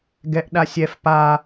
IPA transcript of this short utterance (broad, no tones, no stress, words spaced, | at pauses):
ɡɛʔ ɗasʲɛf pa